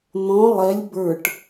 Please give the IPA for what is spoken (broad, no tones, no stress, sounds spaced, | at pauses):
n̪ ɔ̃ lˠ ɛ lʲ b ə˞ ʈ